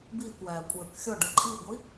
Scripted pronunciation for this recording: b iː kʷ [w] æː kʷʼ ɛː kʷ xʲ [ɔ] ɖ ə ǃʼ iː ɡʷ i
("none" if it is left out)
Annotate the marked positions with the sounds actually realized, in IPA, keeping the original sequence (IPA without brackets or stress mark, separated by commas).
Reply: w, ɔ